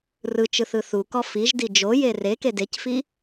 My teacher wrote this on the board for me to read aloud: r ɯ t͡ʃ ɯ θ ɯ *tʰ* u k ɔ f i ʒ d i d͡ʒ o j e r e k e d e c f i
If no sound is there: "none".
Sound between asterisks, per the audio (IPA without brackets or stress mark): θ